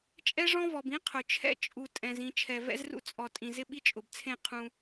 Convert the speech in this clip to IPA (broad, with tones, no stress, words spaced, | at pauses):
t͡ʃʼɛ˦ʐɔ̃˦vɔ˨b ĩ˦ qʰʊ˨t͡ʃʰɛ̰˦ t͡ʃʼu˨tʼɛ̃˨zĩ˨ t͡ʃʰɛ˨vɛ̰˦zrṵ˦t͡sʼɔ˨ tʼĩ˨zɪ˦ ɓi˦t͡ʃʼʊ˨bt͡sʰẽ˦˨ qʰũ˦